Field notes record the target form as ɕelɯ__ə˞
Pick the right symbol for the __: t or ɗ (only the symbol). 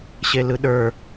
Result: ɗ